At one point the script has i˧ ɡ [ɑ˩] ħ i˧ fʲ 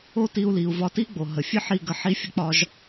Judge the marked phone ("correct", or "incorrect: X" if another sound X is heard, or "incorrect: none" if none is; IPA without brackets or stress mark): incorrect: ə˩